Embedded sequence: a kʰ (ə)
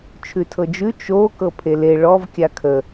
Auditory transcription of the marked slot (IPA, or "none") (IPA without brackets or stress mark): ə